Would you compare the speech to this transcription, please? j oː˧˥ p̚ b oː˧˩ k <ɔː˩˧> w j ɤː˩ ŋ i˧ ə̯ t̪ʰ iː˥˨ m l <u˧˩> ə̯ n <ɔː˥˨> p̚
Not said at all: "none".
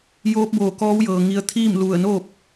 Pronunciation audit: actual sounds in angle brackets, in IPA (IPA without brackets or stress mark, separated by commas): ɔː˧˥, u˧˩, oː˥˨